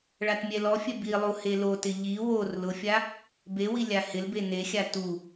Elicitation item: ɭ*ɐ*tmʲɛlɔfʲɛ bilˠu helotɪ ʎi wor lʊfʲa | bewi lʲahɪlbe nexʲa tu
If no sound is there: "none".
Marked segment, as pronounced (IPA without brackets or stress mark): a